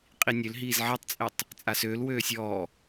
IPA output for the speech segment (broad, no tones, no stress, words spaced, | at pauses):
qʼinʲøl ɦiːzʕetˤt͡sʼɛtˤ | t͡sʼasøːl wøːsʲɔː